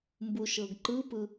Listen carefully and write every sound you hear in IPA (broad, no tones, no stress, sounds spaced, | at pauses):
m b u ʃ ɤ ɡ ǃ ɯ p ɯ